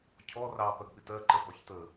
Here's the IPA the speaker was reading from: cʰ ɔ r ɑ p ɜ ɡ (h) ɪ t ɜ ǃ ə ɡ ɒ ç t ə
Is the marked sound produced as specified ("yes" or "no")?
no